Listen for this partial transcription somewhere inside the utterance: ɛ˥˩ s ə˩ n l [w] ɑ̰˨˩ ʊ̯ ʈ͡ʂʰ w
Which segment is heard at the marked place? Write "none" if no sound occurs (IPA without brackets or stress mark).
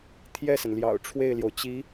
j